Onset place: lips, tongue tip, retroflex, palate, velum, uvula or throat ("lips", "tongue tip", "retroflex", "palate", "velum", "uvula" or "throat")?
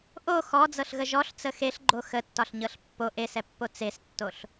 throat